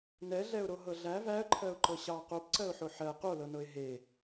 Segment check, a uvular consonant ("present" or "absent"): present